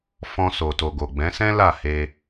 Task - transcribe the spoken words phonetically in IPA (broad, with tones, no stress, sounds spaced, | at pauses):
f ɔ̃˧ s o˨ t o˨ ɡ o˨ ɡ͡b ɛ̃˨˦ s ɛ̃˦ l a˦˨ h e˧